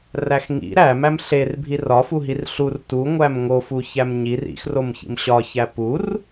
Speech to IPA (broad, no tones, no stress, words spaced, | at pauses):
ræxŋḭ ɾæmæm ɬer bʱirɒfuɦir ɬur tu ŋʷæmŋo fuçæmɲir ḭxromçḭm ɕɒçæ pur